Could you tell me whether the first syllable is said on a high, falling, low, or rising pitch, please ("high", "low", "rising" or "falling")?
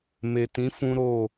low